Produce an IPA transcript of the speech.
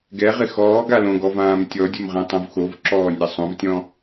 ɡ ɛ ʁ ɪ x ɔː ɡ a l õ ɡ ɔ v ãː m tʲ ɔ dʲ o m ʁ ɛ̃ tˤ õ v x o v ǁ ɔː nʲ a sˤ õ v tʲ ɔ̃

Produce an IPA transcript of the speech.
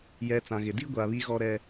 j ɛ˨ t͡s ã˨ ɣ ɪ˨ d i˦ ɡʷ a˨ β i˦ ɣ ɔ˦ ɾ ɛ˦

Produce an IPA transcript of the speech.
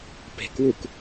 p e̤ k w u k

